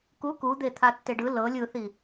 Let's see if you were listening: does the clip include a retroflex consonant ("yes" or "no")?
yes